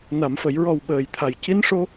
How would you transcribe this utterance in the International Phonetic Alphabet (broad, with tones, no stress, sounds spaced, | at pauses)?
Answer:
n a˨˩˨ m f ə˨˩˨ j ɹ ɔ˨˩ w ɓ əː˨˩ j t̪ʰ a˨˩ j c i˧˥ n ʂ o˧